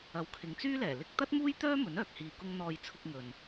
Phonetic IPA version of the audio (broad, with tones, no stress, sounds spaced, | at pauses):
ɐ˨˧ w kʰ ɪ˨˧ ŋ t͡s yː˥ l ɛː˨˩ l ɪ˧ k̚ t̪ ɐ˥ t̚ m uː˥ j t̪ œː˥ m ɵ˨˥ n œː˨ k̚ h iː˧ k ʊ˥ ŋ n̪ ɔː˧ j t͡sʰ ʊ˧ k̚ ŋ ɵ˨ n